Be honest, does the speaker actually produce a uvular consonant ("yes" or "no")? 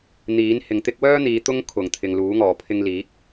no